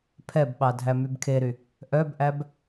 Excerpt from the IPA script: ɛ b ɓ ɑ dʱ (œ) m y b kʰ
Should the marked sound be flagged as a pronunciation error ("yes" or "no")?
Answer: yes